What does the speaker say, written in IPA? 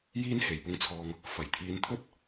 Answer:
j iː˥ n h e˨˩ j p ʊ˧ ŋ t͡sʰ ɔː˨ ŋ | f ɐ˨˩ j t̪ʰ iː˨˧ n t̪ʰ ɵ˥ t̚

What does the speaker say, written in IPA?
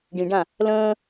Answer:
ɖ ĩ ɖ ã | l ə̃ː

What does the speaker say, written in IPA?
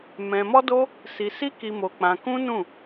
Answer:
m ɛ̃˧ m ɔ˦ d o˦ | s i˧ s i˦ k i˧ m o˧ k͡p ã˧ k ũ˦ n ũ˦˨

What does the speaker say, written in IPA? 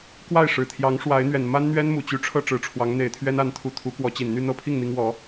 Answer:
k w a˥˩ ɪ̯ ʂ ɻ̩˨˩ t̪ʰ j ɑ˧˥ ŋ ʂ w a˧˥ ɪ̯ n̪ ɥ ɛ˨˩ n m a˥ n n̪ ɥ ɛ˥ n m u˨˩ t͡ɕ y˧˥ ʈ͡ʂʰ ɤ˥˩ ʈ͡ʂ ɻ̩˧˥ ʈ͡ʂʰ w ɑ˧˥ ŋ n̪ e˨˩ ɪ̯ t̪ʰ ɥ ɛ˥ n a˧˥ n t̪ʰ u˧˥ t̪ʰ u˧˥ k w ɔ˧˥ t͡ɕ i˨˩ n n̪ y˥˧ n̪ ɤ˥˧ pʰ i˥˩ ŋ n̪ i˥ ŋ w ɔ˧˥

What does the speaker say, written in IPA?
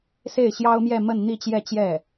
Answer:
s e˥˩ ɪ̯ ɕ j ɑ˥ ʊ̯ m j ɛ˥˧ m ə˥˧ n n̪ i˥˧ t͡ɕ j ɛ˥˧ t͡ɕ j ɛ˥˩

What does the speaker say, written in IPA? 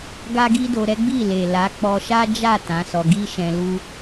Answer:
ɡ a˦ ɡ i˦ d o˧ ɾ ɛ˦ ɡ͡b i˦˨ l e˨ l a˨˦ k͡p ɔ˧ ʃ a˦ d͡ʒ a˦˨ t ã˨˦ s ɔ˧ ɡ i˦ ʃ ɛ̃˧ l u˦

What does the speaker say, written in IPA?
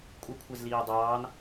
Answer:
kʷʼ ɪ kʷʰ ɛ z l iː dˤ ɑː n

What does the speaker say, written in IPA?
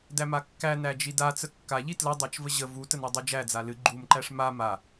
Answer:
d æ m a kː æ n æ d͡ʒ i d a t͡s ə kː a ʎ i t l ə dˤ æ t͡ʃ v ə ʑ ə v u t ə n æ dˤ e d͡ʒ æ d͡z a l ɨ ɡ͡ǃ u m ǃ æ ʂ m a m a

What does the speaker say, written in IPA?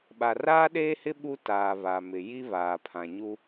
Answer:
ɓ a˨ r aː˦ ɗ eː˦ h ɪ˦ ɓ u˦ t aː˨ β a˨ m ɪ˨ j i˦ β aː˨ pʰ ã˨ ɲ u˦

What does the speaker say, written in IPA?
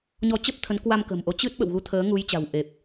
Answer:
ɲ ɔ˧ t͡ɕ ə˦˥ p̚ t̪ʰ ə˨˦ n k w a˧ m k ə̤ː˨˩ m ʔ o˨˦ t͡ɕ ɨ˦˥ t̚ ɓ ə̰˧˨ w ɣ u˨˦ t̪ʰ əː˨˦ ŋ u˨˦ j t͡ɕ a̤˨˩ w ʔ e˨˩ p̚

